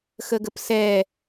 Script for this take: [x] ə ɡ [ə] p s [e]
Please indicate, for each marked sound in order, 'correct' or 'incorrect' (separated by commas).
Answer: correct, correct, incorrect